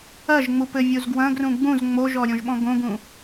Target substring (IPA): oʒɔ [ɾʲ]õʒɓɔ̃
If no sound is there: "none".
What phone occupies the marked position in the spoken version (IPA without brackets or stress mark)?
ɾʲ